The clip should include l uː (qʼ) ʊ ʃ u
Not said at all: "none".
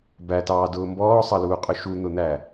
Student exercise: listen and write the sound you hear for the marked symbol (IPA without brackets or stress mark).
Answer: qʼ